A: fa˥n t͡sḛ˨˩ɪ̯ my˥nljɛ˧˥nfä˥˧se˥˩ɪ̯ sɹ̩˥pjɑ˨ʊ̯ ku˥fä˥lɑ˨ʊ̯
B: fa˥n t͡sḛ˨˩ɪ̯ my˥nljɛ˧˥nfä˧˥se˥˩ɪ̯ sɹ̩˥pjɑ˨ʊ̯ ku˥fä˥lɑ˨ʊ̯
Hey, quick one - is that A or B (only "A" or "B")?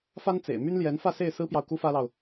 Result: A